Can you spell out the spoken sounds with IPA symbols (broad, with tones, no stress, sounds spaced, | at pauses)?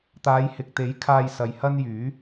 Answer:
t̪ aː˨˧ j h ɪ˨ k̚ t̪ e˨˥ j kʰ aː˧ j s ɐ˨ j h ɐ˥ n j yː˨˥